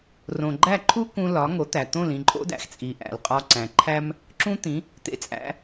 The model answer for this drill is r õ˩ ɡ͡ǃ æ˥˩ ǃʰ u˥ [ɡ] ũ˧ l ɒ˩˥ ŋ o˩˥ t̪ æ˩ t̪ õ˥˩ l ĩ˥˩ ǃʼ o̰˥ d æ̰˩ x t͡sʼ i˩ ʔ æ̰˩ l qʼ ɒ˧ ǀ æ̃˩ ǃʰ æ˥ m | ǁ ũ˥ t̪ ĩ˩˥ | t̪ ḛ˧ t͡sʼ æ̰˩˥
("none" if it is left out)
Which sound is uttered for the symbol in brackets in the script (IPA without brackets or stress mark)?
k